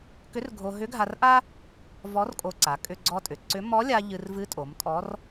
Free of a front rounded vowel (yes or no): no